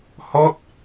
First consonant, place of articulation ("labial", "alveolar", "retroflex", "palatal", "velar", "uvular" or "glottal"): glottal